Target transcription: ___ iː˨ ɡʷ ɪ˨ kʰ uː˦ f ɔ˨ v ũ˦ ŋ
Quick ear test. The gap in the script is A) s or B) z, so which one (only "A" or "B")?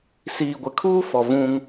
A